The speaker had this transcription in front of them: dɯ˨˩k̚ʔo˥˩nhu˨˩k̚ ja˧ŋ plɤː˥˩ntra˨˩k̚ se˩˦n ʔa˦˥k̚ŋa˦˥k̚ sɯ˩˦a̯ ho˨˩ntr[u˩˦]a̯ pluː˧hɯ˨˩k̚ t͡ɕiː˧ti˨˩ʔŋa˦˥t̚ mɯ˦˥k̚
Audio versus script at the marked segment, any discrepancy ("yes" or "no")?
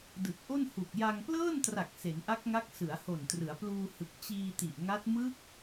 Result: yes